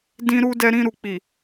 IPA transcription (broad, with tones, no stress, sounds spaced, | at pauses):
d ĩ˧ ɾ u˧ d ɛ˧ ɾ ĩ˧ ɾ u˨ k͡p i˨